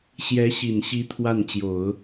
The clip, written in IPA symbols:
ɕjɛ˧˥ɕi˨˩nɕi˧˥ t̪ʰwa˥˩nt͡ɕjo˨˩˦ʊ̯

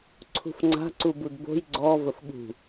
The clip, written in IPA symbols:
ǀʰṳfŋ͡ǀa̤ ǀubudbo̤j ɡ͡ǀɔ vəfɠṳ

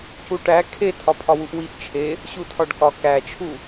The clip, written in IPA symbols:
cuʈæ kʰe tʰɒpʰɒwuʔwiʔ t͡ʃʰe | ɕutʰɒɖkɒ kæt͡ʃʰu

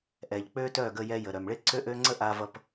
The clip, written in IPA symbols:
ʔɛ˩ʎk͡pø˥tœ˥˩ɡə˧ jɛ˧jə˩ɾœ˩m ɭe˥ ǀø˥ʔø˥ ŋ͡ǀə˥ʔa˧vʌ˧p

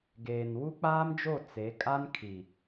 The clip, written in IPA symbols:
ɡeː˨nwu˦k͡paː˦md͡ʒo˦˨ t͡se˨˦ kʼa˦nkʰi˨

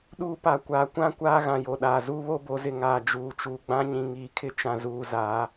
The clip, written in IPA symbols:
ɗuː˦pa˨˦ kʷaː˨kʷã˦ kʷaː˦ɣã˨jo˨ɗaː˨ zuː˦βo˦bo˨˦zɪ˨ ŋaː˨d͡ʒuː˨t͡ʃuː˨ ɡ͡bã˦ɲĩ˨ ŋiː˨kʰɪ˦t͡ʃã˨zuː˨ zaː˨˦

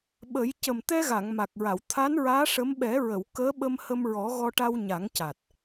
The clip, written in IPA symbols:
ɓə˨˩˦j cə˨˩mt̪ɛ˧ɣa˨˩˨ŋ ma˨˩k̚ɹa˨˩˨wt̪ʰa˧˥nɹaː˧˥ ʂə˧˥m ɓɛ˨˩˦ɹə˨˩˨w kəː˧˥ɓə˧mhə˧mɹɔ˨˩˦ ɣɔ˧ʈa˧wɲa˨˩˦ŋca˨˩t̚

